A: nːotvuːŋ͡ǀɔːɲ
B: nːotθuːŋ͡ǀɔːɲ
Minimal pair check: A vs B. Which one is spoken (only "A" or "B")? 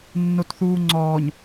B